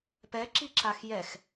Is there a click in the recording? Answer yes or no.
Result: yes